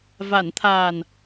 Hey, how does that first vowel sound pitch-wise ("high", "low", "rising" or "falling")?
low